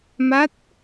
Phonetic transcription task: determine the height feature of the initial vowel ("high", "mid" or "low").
low